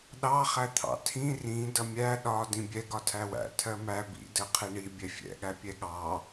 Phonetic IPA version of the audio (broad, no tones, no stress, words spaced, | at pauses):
ɗɑ χæt̪ʰɑ̰tʰĩ rĩ dʌmʲæ ɗɒ dĩbʲɛ ɡɒtʰæwæ̰ tʰɜmæ bḭ dɜqʰiɳi bʲɛfʲɛ̰ ɠæpʲɛɠɑ